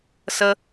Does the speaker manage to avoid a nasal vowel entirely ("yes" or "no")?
yes